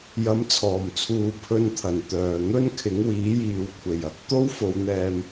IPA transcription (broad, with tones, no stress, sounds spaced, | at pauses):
j ɐ˨˥ m t͡sʰ ɔː˨˩ m t͡sʰ uː˨ pʰ ɵ˧ n t̪ʰ ɐ˨˩ n t̪ œː˨˩ n̪ ɵ˥ n kʰ ɪ˨˥ ŋ w iː˨˥ j iː˨ w kʷʰ e˨˩ j ɐ˨˥ k̚ t̪ o˥ w f o˨˧ w n̪ ɛː˧ m